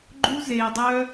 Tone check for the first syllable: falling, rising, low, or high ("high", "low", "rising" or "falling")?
high